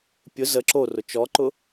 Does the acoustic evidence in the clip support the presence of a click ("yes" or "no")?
yes